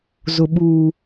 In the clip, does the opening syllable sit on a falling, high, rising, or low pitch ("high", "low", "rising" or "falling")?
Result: low